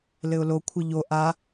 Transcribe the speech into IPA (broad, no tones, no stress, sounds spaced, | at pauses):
l ɘ ʊ̯ l o kʷʰ ɘ ʎ o ʔ a